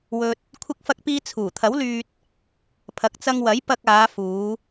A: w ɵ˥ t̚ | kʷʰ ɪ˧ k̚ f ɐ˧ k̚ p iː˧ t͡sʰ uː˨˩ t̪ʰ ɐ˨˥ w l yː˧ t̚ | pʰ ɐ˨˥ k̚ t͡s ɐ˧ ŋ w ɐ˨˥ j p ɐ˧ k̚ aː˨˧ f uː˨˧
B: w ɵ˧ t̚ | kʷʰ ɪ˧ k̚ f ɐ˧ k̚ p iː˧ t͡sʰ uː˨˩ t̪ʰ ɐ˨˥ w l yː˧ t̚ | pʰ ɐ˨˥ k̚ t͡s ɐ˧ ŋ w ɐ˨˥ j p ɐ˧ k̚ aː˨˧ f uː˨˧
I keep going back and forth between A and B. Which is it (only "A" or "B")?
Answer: B